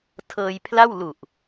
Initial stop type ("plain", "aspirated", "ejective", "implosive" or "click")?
aspirated